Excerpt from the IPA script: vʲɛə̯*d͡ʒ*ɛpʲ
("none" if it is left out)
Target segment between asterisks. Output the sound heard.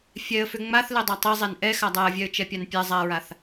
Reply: t͡ʃ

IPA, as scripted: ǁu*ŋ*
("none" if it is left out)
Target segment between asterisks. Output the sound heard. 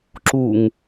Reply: ŋ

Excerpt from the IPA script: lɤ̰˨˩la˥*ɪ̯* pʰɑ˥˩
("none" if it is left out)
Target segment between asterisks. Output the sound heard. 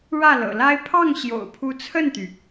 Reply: ɪ̯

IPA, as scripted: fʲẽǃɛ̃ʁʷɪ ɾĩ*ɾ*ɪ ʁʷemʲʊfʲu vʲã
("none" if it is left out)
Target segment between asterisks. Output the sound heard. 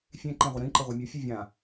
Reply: ǃ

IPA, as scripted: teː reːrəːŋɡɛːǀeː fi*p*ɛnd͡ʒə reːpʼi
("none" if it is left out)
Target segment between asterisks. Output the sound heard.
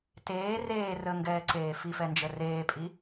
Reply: f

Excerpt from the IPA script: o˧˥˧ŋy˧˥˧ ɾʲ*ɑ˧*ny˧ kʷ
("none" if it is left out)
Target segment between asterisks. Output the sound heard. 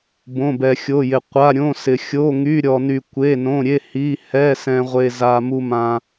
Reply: ɔ˧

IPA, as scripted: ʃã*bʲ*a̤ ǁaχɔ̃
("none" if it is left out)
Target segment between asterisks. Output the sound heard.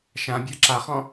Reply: bʲ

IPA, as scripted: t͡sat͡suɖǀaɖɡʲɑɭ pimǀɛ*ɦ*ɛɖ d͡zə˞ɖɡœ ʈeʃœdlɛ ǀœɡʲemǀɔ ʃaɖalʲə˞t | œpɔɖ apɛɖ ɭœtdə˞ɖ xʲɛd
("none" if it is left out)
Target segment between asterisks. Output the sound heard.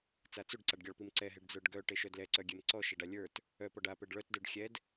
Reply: ɦ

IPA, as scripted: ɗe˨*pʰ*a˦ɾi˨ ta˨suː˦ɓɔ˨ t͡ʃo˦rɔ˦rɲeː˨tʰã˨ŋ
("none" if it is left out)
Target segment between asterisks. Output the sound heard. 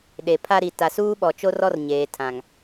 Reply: pʰ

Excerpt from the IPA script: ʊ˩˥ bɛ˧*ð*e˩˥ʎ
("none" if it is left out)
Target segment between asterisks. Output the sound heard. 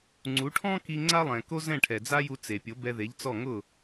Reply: ð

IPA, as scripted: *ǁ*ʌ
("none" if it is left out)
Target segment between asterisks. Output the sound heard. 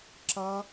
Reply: ǁ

